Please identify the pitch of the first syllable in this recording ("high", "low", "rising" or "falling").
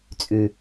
low